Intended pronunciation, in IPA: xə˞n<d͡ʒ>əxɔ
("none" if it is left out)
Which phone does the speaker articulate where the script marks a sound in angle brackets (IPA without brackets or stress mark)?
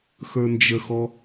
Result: d͡ʒ